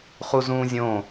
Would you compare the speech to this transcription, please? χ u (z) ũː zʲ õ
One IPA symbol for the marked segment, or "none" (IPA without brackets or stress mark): z